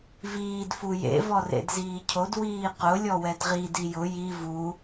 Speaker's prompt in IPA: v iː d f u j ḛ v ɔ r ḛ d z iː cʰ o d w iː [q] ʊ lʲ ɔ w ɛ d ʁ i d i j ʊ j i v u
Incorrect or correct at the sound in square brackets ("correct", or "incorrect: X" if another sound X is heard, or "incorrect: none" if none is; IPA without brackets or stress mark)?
correct